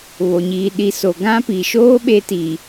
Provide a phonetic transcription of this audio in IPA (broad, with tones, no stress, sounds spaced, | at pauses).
β o˨ ɲ iː˨ ɗ i˨ s o˨ ɡ ã˦ p i˨ ʃ oː˦ ɓ e˦ t iː˨